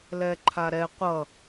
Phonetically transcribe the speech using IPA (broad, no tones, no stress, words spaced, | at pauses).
lɛǃʰaɾɛ qʷʌ